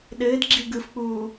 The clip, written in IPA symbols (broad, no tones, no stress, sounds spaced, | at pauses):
ɗ ɘː d ɡ͡ǁ i ɡ ɯ f k͡p uː